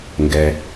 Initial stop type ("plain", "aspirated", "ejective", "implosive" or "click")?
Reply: plain